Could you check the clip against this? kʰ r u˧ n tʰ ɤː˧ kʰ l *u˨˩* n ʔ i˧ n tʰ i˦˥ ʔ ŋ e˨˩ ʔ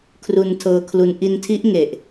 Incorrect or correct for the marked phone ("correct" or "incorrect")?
incorrect